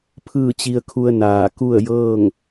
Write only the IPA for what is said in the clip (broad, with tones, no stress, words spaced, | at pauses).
pʰɯː˥˨t͡ɕi˧ə̯kʰu˧ə̯ naː˧˩ ku˥˨ə̯jɤː˥˨ŋ